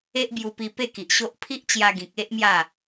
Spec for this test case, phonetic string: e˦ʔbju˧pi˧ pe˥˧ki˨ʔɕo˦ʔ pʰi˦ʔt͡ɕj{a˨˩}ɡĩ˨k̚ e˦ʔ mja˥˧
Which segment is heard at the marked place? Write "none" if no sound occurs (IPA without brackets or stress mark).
a˧